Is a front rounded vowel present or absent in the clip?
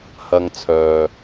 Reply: present